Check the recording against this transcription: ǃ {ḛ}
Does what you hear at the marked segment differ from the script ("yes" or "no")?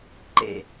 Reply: no